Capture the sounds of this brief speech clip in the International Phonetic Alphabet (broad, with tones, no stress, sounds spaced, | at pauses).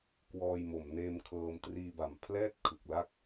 k w ɔː˧ j m o˨˩ m n eː˧ m kʰ ɤː˧ m t r iː˧ b a˨˩ m pʰ l ɛː˥˩ t̚ kʰ ɯ˨˩ k̚ l a˥˩ k̚